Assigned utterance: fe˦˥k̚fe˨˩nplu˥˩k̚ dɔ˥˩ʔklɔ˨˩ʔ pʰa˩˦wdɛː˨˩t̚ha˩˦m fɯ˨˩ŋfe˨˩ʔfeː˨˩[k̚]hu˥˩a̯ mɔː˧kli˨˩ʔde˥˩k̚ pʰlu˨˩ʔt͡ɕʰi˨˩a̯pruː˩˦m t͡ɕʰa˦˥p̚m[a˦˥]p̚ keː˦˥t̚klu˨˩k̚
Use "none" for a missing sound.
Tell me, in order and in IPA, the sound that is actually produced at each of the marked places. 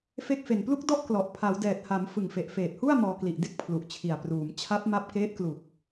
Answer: t̚, a˦˥

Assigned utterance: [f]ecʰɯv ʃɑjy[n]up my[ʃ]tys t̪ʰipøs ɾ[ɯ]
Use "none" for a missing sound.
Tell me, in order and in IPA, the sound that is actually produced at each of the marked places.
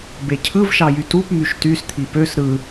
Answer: b, t, ʃ, ɯ

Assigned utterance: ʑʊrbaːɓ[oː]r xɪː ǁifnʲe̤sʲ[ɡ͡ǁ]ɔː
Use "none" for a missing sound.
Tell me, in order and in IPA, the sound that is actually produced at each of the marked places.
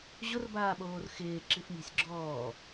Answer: oː, ɡ͡ǁ

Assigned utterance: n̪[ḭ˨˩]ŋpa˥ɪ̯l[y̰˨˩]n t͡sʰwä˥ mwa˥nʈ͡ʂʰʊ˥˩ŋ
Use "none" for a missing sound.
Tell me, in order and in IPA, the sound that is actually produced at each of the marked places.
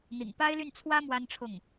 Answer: ḭ˨˩, y˥˩

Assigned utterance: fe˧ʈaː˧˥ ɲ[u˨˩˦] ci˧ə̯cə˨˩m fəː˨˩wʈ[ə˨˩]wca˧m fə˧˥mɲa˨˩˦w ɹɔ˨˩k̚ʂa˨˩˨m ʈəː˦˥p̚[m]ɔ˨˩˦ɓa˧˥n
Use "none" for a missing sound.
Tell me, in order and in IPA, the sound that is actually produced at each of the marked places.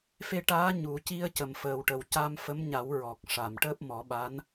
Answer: u˨˩˦, ə˨˩, m

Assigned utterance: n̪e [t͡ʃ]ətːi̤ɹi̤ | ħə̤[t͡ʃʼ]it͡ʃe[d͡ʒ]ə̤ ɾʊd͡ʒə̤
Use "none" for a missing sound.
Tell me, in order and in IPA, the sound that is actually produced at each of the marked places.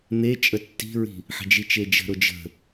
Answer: t͡ʃʼ, d͡ʒ, d͡ʒ

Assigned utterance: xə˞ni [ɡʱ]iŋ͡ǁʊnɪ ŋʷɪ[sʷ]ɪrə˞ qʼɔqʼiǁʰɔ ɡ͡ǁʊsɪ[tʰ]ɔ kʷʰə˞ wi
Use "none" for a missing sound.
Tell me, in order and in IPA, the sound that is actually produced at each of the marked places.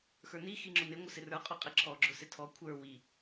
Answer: x, s, tʰ

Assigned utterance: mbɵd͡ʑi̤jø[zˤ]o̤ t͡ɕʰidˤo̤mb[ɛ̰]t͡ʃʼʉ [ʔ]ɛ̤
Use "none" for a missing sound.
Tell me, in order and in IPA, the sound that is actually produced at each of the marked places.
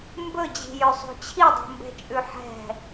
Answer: sˤ, ɛ̤, ħ

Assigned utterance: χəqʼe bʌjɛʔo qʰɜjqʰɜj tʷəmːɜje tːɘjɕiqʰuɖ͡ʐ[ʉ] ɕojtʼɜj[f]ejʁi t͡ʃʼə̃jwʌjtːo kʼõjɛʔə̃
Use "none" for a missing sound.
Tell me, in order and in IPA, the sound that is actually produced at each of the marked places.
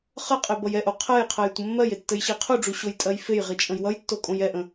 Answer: u, f

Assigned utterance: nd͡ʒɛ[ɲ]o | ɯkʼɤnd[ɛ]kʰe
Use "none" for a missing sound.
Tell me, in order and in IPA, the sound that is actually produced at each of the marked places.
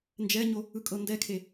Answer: ɲ, ɛ

